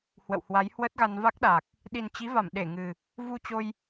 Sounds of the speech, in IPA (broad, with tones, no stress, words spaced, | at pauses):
hwə̰˧˨whwa˨˦j hwə˦˥t̚ɣa˧n va˦˥k̚ɗaː˨˩k̚ | ɗi˨˩nt͡ɕi˨˦va˧˩m ɗe˧˩ŋɨ˨˩ | vu˧t͡ɕo˧j